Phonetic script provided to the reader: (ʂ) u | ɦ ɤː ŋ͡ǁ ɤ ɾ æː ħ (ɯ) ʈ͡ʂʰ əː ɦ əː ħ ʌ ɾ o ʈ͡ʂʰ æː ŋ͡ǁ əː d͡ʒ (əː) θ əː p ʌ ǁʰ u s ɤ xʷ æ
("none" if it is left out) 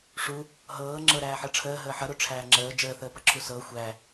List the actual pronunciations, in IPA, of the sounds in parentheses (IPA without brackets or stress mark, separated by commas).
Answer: ʂ, ɤ, əː